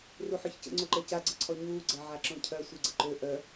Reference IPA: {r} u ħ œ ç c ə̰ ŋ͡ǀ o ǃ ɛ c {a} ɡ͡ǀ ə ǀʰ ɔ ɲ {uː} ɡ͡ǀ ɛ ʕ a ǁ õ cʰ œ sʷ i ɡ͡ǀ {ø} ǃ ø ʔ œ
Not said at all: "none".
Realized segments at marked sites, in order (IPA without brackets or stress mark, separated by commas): r, a, uː, ə